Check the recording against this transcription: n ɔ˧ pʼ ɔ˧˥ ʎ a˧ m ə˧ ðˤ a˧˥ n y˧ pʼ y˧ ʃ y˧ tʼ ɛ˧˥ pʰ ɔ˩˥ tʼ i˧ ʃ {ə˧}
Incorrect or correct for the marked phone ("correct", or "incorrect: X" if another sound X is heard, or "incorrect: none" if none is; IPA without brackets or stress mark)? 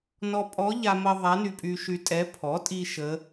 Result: incorrect: ə˧˥